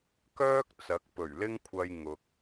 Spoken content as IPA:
k œː˥ k̚ t͡s ɐ˨˥ k̚ p ɵ˨˩ ɥ l ɪ˥ ŋ kʷʰ ɐ˧ j ŋ ʊ˨ k̚

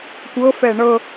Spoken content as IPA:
kʷ ɤ f ɛ ɳ ɤ

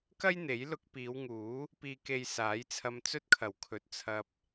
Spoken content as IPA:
k ɐ˥ j n̪ e˨˥ j l ʊ˧ k̚ p iː˨˧ w ŋ uː˨˥ | p iː˨ k e˨ j s aː˨˥ j t͡sʰ ɐ˧ m t͡s ɵ˥ t̚ kʰ ɐ˨˩ w kʰ ɵ˨ t̚ t͡sʰ ɐ˧ p̚

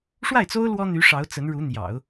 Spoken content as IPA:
ʂ w a˥˩ ɪ̯ t͡s o˥ ʊ̯ l w ɔ˥ n̪ y˧˥ ʂ ɑ˧˥ ʊ̯ t͡s ə˧˥ n ɻ u˧˥ n̪ j ɑ̰˨˩˦ ʊ̯

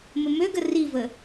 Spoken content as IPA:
m ə m ø ɡ ə r i v ə

